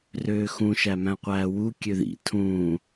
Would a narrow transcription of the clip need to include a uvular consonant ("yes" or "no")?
yes